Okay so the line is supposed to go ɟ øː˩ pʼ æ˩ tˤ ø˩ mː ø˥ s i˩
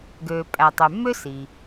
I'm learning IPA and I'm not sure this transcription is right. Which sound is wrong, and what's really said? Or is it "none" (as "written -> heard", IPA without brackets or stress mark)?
ɟ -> ɡ